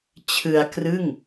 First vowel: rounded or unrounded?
unrounded